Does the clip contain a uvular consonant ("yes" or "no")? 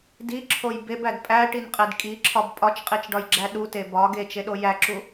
yes